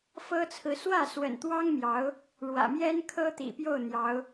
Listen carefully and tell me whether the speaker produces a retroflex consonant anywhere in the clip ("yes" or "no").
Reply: yes